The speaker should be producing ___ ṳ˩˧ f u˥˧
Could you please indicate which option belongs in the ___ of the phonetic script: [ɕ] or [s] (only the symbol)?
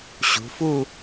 ɕ